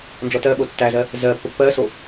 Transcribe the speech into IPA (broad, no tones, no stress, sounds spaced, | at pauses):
n d͡ʒ ɔ t ɜ ɓ o tː æ z ɜ | z ɜ pː ə pː ɜ s o